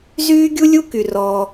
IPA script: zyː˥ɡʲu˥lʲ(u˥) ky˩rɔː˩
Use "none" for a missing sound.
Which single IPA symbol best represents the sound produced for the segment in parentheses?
u˥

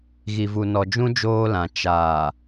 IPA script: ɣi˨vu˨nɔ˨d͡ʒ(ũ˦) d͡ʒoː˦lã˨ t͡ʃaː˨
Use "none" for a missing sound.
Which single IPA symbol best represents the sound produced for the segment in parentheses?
ũ˦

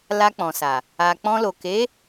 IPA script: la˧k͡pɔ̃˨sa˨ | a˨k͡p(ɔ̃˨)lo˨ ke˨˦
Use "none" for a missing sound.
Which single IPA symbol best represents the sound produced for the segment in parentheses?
ɔ̃˧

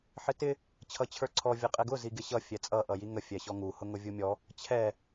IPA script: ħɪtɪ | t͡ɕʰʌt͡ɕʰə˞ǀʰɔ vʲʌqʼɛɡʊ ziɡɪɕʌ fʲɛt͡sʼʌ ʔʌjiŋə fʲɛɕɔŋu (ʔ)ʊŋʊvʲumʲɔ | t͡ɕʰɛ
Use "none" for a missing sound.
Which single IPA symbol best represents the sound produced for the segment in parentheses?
h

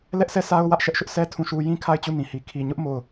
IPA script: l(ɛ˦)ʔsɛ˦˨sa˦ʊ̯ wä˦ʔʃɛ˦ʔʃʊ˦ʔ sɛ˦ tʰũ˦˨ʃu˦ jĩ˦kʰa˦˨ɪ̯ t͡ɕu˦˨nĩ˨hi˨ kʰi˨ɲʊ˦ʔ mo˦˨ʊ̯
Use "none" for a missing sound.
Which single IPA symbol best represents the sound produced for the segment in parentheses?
ɛ˦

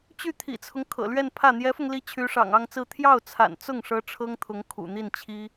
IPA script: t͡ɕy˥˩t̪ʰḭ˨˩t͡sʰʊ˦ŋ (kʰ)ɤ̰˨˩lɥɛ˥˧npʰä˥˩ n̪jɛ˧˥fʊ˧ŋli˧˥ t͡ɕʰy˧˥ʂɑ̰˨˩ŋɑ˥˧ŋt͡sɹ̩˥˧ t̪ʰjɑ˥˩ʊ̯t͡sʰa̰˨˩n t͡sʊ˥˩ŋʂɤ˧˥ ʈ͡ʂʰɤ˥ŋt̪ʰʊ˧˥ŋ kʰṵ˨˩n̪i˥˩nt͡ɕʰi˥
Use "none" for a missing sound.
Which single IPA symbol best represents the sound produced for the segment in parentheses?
kʰ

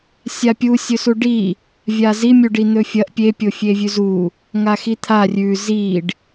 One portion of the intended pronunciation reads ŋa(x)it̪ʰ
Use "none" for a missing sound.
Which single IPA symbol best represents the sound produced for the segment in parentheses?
x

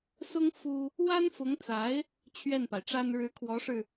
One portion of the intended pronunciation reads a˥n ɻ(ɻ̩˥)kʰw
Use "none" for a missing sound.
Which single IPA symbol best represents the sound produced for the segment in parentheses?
ɻ̩˧˥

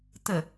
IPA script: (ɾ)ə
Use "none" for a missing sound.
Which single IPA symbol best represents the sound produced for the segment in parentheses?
t̪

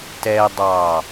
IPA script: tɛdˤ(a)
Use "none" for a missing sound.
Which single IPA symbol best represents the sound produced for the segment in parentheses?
ɑ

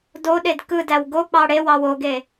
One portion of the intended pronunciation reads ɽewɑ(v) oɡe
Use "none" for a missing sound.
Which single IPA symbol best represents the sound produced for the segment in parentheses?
w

